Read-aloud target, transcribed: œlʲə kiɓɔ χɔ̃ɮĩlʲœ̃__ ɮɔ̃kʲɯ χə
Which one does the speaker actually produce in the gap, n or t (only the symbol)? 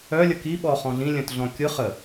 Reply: t